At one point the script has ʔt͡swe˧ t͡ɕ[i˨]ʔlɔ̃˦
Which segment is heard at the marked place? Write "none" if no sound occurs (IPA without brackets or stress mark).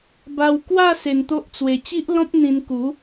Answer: i˦